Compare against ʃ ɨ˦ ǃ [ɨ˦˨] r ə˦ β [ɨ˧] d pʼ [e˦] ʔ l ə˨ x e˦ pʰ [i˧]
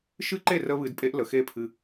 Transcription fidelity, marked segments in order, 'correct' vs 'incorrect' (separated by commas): incorrect, correct, correct, incorrect